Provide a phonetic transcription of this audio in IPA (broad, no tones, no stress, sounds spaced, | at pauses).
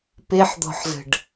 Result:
p e ħ d̪ ɔ̤ ħ z ə̤ ɖ